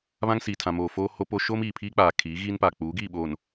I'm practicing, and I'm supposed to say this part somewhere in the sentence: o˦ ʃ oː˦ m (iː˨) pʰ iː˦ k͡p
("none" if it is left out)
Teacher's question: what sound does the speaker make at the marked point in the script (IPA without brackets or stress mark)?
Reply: iː˨